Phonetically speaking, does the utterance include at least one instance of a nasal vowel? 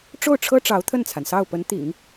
no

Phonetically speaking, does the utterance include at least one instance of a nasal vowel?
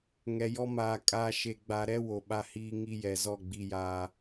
no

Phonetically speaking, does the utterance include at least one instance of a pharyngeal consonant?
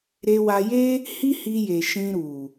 no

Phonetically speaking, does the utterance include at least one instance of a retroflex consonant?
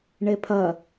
yes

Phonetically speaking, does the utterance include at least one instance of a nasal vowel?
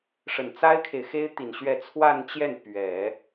no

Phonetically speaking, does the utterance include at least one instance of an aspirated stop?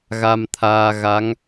yes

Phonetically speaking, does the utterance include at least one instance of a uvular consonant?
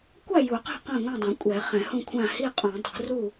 yes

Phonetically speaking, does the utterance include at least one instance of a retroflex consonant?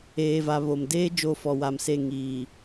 no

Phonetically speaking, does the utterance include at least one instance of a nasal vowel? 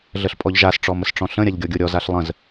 yes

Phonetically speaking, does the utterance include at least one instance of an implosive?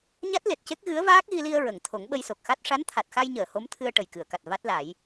yes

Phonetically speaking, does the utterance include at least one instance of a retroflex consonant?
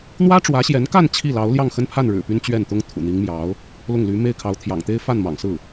yes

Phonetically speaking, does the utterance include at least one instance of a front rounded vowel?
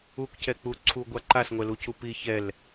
no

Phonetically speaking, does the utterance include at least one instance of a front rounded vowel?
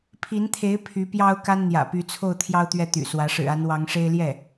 yes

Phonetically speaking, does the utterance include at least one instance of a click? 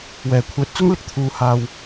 no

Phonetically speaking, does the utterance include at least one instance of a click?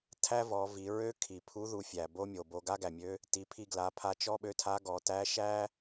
no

